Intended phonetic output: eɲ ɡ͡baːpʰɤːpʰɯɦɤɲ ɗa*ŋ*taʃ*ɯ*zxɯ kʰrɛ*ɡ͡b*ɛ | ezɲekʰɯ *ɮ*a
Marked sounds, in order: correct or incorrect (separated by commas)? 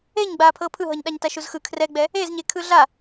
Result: incorrect, incorrect, correct, correct